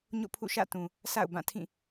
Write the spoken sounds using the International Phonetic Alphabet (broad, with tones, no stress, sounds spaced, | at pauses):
ɲ o̰˦˨ pʰ ṵ˦˨ ʃ ä̰˦˨ t ũ˨ | sʰ a̰˦˨ ʊ̯ b ã˦˨ tʰ ĩ˦˨